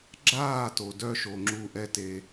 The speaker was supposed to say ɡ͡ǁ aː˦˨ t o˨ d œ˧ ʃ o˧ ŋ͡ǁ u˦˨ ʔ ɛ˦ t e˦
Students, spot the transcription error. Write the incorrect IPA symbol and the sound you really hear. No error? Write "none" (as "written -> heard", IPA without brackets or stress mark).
none